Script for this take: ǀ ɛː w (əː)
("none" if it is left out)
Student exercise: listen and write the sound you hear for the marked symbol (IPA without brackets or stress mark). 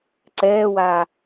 aː